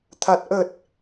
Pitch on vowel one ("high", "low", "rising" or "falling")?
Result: low